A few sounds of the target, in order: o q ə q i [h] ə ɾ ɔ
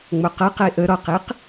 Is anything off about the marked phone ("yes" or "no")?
yes